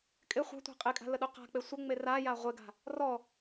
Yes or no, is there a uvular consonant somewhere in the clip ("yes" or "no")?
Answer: yes